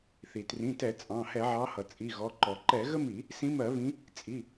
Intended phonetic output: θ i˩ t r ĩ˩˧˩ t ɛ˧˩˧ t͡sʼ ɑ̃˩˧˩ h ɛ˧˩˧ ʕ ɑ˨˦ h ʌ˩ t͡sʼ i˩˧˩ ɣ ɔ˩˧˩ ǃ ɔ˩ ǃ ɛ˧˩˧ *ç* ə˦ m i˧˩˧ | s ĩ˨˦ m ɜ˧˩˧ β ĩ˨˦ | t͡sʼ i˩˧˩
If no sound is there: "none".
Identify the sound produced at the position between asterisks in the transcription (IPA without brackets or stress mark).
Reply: ɣ